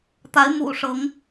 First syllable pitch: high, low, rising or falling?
rising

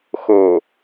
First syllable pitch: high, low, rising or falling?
low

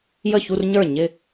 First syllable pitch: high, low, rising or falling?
falling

